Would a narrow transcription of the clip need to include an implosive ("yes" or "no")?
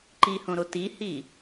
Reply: no